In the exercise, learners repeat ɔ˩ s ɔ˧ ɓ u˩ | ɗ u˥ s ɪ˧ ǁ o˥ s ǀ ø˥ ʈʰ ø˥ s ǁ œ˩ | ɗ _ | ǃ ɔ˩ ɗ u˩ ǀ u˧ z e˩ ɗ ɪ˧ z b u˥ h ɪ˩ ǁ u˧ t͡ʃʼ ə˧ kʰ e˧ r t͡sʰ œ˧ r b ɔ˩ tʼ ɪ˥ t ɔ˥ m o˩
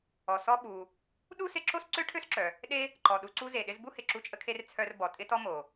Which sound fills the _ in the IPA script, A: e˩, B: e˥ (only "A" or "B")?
B